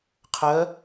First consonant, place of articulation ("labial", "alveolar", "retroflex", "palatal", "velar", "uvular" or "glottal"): uvular